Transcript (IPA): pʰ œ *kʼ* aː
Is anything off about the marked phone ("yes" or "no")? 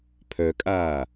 no